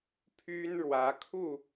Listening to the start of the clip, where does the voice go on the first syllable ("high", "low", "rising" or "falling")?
high